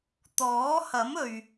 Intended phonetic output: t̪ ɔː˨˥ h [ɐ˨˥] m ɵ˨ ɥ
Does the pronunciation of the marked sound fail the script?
no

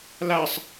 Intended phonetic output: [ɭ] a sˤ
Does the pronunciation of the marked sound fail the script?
yes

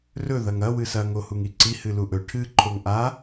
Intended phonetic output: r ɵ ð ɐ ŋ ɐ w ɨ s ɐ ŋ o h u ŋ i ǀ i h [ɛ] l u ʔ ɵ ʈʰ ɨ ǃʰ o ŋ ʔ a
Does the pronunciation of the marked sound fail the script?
yes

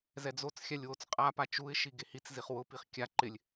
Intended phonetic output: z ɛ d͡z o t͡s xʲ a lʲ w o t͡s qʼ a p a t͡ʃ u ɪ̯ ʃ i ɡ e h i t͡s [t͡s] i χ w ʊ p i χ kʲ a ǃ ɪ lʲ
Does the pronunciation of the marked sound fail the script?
yes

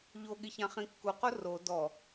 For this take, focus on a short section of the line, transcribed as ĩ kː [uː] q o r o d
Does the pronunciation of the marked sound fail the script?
yes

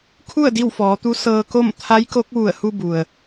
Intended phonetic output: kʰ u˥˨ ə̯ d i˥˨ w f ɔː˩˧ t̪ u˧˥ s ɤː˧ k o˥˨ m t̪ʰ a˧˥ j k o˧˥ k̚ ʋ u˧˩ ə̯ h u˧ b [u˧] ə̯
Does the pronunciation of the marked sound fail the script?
yes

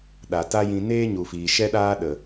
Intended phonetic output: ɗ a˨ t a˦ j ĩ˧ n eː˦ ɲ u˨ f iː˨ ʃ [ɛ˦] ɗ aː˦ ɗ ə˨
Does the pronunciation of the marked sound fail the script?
no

